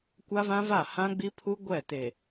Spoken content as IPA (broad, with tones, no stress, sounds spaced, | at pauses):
kʷ a˦ v ã˦ v a˦˨ h ã˦ ɡ͡b i˦ pʰ u˦ ɡʷ ɛ˦˨ t e˨